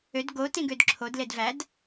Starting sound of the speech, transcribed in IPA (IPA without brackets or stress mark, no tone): ø